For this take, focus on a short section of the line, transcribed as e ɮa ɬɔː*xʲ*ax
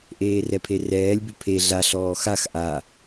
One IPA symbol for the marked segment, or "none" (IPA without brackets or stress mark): x